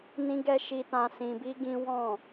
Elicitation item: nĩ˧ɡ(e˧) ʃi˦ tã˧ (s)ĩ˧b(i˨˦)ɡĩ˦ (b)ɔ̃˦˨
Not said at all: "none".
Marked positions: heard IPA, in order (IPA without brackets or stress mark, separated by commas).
ɛ˧, s, i˦, w